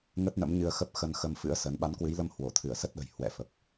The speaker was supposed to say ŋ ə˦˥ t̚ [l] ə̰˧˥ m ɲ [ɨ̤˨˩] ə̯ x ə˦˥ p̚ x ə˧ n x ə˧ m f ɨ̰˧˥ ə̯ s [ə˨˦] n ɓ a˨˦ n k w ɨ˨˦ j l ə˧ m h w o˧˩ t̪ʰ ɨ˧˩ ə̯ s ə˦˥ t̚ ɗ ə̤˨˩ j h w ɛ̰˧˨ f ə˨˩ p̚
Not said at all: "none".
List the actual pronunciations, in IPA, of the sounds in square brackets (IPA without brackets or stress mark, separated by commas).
n, ɨ˧, ə˨˦